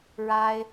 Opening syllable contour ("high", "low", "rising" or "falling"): high